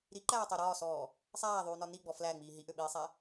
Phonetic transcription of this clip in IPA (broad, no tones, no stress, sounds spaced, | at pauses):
ɾ i ǃ æː tˤ ø ɾ ɒː s ɔː | sˤ æː ðˤ yː n ɒ n i ɡ͡b ɔ f l æ ŋ͡m iː ɦ i ʔ ø ɓ iː sˤ æ